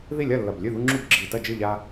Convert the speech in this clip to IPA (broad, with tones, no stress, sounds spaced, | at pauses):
ð i˥˩ lʲ ɐ˥˩ lː ɐ˧˩ b lʲ ʉ˥˩ ð u˦ ŋ͡ǁ u˥˩ b ɡ͡ǁ i˧˩ t ɐ˥˩ d͡ʒ ɨ˥˩ ʎ a˦